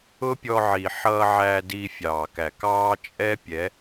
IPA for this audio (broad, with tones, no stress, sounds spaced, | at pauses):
ʊ˦ pʲ ɔ˧ ʕ i˨ ħ ʌː˧ ʕ æ˧ d iː˧ fʲ ɑː˨ k æ˨ k ɑː˦ t͡ʃʼ ɛ˦ pʲ ɛ˨˦